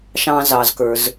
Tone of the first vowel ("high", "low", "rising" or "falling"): low